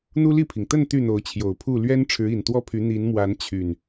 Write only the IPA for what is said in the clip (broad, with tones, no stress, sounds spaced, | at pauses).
n̪ u˦ l i˥˨ pʰ i˩ ŋ t̪ ə˥˨ n t̪ y˥˨ n̪ o˨˦ ʊ̯ t͡ɕʰ j o˨˩ ʊ̯ pʰ u˥˨ l ɥ ɛ˦ n ʈ͡ʂʰ ɻ̩˨˦ i˨˩ n t̪ w ɔ˥˨ pʰ y˨˦ n̪ i˨˦ n m w a˨˦ n t͡ɕʰ y˨˩ n